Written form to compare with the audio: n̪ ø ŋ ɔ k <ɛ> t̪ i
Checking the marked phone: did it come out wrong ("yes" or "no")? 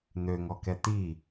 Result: no